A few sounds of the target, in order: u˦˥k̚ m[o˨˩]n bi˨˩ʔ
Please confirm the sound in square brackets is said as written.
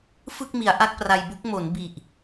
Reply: no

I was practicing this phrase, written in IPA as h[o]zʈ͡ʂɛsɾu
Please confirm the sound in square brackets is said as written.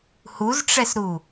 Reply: no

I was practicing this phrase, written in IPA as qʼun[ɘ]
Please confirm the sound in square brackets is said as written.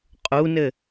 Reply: yes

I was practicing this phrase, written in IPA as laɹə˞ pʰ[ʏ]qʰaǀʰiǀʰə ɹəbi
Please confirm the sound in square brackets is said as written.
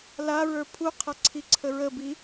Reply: no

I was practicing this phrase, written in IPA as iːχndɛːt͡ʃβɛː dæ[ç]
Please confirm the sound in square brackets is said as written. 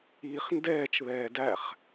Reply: no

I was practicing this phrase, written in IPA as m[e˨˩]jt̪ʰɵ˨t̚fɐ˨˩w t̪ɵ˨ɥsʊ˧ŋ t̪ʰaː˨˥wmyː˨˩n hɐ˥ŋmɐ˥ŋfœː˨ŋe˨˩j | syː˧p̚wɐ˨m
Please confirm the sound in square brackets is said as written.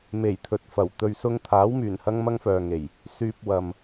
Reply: yes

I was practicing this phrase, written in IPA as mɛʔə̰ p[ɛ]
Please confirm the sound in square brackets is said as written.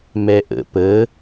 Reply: no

